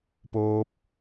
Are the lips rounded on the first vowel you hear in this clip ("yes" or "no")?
yes